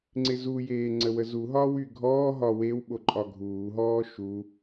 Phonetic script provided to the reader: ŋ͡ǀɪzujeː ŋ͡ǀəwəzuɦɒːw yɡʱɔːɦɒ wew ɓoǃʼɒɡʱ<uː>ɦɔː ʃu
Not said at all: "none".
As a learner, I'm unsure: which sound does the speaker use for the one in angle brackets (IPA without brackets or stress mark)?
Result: uː